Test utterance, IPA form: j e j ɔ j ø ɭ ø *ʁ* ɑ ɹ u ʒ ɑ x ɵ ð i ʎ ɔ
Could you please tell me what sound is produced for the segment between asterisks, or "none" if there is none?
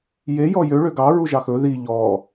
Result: ɡ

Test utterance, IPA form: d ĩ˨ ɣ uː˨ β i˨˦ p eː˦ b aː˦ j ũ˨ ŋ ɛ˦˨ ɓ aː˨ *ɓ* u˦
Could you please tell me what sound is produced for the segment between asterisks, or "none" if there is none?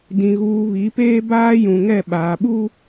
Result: ɓ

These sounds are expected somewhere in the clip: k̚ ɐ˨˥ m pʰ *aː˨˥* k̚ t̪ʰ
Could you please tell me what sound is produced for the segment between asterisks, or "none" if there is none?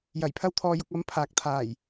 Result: aː˨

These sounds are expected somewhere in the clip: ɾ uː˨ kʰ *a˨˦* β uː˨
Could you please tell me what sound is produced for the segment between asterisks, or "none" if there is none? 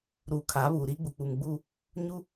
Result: a˨˦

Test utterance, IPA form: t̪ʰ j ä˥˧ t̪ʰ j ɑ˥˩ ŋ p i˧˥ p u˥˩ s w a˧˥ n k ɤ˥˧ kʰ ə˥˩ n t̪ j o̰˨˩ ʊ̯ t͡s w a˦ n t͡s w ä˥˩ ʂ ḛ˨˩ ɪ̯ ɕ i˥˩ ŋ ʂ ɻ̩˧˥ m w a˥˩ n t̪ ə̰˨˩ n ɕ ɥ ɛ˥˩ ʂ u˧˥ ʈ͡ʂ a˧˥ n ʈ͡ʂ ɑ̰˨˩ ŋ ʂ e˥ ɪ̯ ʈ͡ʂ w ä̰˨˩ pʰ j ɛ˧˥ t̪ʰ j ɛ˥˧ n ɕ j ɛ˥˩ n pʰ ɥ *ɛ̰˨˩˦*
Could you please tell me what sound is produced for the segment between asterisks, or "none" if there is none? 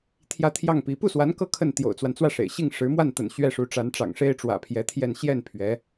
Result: ɛ˧˥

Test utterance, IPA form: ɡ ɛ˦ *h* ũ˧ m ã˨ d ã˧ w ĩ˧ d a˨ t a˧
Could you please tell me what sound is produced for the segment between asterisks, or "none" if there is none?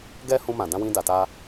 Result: h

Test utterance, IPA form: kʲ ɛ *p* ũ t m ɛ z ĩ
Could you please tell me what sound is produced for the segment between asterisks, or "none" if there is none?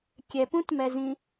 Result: p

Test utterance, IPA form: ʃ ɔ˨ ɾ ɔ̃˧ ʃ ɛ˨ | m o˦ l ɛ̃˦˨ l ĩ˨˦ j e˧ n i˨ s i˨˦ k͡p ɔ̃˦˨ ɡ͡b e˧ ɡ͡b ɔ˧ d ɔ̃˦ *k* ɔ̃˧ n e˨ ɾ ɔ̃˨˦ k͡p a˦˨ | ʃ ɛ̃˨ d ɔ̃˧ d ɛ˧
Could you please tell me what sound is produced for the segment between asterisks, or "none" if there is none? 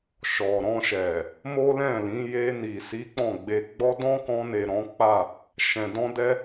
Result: k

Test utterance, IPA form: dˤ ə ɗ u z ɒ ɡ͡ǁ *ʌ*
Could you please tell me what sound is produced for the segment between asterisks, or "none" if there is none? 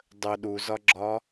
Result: ɒ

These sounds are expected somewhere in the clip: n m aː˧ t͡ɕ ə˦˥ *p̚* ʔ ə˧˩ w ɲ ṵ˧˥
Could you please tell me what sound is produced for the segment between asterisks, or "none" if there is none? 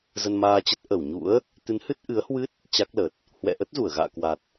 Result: t̚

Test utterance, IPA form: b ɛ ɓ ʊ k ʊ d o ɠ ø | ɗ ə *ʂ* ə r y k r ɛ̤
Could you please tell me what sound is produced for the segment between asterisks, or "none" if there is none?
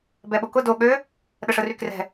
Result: ʂ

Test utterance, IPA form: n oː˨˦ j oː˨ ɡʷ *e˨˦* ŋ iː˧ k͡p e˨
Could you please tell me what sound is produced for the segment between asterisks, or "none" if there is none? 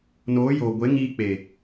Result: e˨˦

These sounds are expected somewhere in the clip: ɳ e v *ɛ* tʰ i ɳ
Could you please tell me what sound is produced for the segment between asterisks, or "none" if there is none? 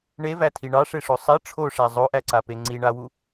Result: æ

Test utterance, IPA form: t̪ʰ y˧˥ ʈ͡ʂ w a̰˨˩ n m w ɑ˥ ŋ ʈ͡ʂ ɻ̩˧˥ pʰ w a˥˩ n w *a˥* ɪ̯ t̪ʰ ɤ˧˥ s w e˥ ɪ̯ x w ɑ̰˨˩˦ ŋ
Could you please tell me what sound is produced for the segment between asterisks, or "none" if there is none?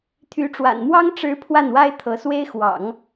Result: a˥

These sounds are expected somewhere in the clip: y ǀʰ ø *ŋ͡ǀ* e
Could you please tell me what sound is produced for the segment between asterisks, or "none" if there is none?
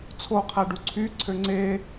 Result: ŋ͡ǀ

